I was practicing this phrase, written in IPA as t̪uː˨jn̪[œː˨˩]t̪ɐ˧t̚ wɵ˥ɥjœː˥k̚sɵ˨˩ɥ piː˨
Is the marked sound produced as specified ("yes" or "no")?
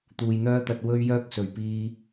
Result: no